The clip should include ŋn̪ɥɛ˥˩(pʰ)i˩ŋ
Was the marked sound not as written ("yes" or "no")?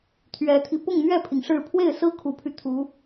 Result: no